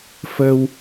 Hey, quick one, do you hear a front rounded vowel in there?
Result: no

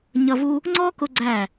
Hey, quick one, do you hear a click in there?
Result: yes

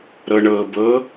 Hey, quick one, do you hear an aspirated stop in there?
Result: no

